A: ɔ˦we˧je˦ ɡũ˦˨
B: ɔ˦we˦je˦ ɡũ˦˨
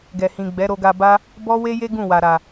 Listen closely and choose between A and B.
B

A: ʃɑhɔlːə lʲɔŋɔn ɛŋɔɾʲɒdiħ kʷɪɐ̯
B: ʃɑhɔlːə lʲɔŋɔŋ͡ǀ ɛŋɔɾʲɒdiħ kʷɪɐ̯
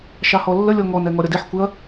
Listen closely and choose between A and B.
A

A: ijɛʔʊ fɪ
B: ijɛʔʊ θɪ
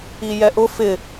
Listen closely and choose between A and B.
A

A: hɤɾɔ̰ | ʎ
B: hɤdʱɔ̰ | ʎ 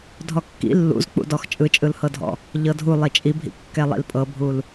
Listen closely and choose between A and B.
B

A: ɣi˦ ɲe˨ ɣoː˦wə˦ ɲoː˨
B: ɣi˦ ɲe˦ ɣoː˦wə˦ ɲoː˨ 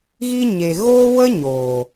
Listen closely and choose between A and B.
A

